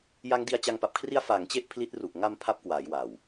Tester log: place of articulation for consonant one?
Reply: palatal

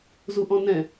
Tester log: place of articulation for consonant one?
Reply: alveolar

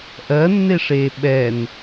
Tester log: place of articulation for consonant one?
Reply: glottal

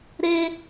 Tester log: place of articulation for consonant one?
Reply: alveolar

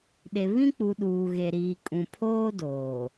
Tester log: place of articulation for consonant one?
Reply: alveolar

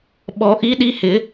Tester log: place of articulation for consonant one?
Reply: labial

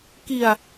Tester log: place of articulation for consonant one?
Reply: velar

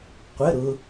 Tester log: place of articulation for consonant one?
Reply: uvular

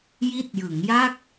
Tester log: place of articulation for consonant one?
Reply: palatal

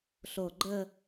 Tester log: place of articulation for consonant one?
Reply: alveolar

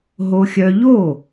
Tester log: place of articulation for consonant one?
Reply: glottal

